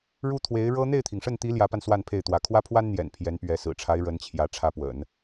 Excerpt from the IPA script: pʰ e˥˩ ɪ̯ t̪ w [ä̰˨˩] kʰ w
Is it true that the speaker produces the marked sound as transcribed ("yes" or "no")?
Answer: no